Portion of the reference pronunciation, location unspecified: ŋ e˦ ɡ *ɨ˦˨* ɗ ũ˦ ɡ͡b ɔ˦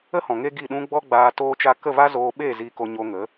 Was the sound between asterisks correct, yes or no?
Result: no